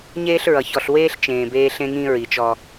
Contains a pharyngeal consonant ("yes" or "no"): no